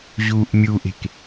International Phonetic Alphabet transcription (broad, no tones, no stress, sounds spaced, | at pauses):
ʑ uː ʔ mʲ u ʔ e̤ k